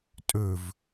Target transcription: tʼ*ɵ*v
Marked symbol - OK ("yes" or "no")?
yes